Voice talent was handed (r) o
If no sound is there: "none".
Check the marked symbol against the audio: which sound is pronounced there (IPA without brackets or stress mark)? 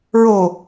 ɹ